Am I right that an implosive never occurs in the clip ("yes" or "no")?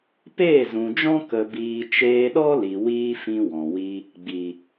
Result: no